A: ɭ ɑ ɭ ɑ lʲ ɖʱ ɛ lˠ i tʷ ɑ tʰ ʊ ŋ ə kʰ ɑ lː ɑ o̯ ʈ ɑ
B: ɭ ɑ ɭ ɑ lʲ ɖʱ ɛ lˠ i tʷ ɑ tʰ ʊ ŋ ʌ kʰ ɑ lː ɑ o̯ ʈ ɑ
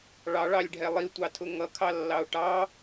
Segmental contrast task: B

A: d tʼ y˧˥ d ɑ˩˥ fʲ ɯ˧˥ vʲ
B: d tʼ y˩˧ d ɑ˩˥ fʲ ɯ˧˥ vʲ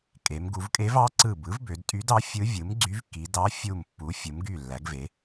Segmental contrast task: A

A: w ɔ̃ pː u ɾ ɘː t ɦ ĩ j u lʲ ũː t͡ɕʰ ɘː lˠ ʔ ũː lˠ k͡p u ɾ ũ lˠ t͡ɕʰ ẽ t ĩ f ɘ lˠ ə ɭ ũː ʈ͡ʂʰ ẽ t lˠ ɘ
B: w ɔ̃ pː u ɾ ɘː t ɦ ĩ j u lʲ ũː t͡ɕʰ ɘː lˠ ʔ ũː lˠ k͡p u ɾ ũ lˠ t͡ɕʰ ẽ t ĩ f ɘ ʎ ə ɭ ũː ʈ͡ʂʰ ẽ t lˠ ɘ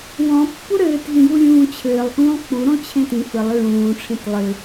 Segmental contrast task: A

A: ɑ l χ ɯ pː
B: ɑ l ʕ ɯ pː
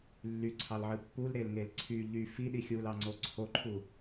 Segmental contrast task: B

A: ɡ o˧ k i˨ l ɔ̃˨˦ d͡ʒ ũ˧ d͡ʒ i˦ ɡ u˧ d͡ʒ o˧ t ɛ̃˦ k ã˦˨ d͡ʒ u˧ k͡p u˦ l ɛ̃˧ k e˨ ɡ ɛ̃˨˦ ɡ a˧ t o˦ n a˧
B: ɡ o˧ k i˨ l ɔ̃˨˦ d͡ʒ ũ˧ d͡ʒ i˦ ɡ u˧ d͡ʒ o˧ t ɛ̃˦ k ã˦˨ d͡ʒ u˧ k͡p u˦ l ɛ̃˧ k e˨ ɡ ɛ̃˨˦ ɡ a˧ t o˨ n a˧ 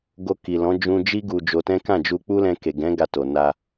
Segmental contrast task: B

